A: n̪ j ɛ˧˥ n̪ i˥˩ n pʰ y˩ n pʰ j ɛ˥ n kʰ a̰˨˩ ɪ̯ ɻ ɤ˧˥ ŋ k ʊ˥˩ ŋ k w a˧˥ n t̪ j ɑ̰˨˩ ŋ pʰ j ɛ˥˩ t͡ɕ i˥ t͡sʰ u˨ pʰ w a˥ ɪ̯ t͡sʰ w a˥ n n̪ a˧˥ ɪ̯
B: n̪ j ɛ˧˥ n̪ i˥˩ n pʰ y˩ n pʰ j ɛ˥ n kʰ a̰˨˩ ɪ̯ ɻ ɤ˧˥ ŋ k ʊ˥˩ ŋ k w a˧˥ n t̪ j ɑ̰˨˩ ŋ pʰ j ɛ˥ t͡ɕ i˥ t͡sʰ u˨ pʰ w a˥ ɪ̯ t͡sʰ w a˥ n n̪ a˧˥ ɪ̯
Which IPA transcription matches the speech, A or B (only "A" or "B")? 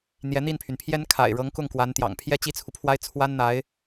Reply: B